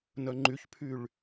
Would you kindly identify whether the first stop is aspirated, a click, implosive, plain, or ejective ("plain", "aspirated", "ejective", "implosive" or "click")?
click